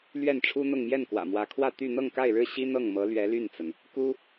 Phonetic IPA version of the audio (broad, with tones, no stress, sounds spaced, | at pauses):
l ɥ ɛ˥˩ n ʈ͡ʂʰ u˥ n̪ ʊ˥˧ ŋ m j ɛ˥˩ n k w ä̰˨˩ m w ä˧˥ kʰ w ä˥˧ t̪ y˥˧ n̪ ɤ˥˧ ŋ k a˥˧ ɪ̯ ɻ ɻ̩˥˩ ɕ i˥ n̪ ɤ˥˩ ŋ m ɤ˧˥ l ɥ ɛ˧˥ l y˥˩ n t͡s ə˩ n | k u˥